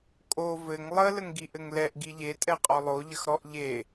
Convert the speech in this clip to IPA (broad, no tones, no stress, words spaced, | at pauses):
kʼo vɘŋ lˠə ləŋɡiʔɘŋlɛʔ ɡiʎe tʼɛqʼɔlˠo ʎəxɾɔʔ ʎe